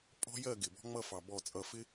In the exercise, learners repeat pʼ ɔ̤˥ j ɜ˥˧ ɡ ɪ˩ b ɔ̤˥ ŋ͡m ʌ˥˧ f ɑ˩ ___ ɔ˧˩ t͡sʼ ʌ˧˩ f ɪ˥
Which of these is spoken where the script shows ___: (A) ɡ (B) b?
B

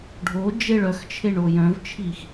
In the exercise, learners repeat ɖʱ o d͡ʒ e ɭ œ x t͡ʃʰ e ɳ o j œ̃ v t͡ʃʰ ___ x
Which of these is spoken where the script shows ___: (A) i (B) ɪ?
A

